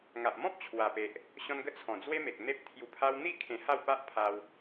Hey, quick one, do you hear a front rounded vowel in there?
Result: no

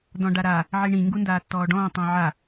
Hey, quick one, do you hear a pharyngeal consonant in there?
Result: yes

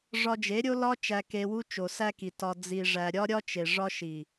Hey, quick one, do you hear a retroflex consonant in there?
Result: yes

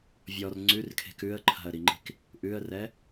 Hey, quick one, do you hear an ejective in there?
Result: no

